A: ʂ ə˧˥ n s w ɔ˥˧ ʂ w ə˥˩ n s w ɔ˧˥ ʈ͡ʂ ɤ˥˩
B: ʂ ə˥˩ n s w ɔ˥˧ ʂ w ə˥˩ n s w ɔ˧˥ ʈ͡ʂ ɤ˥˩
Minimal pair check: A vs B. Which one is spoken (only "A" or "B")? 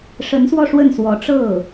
A